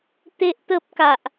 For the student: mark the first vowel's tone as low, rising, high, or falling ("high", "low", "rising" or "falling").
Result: high